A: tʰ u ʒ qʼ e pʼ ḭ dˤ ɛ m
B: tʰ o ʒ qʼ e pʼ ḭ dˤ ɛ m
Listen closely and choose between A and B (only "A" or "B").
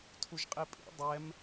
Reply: A